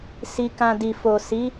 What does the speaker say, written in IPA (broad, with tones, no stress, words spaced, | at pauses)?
si˧kã˧di˨ fo˨si˨˦